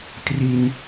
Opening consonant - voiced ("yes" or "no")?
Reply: no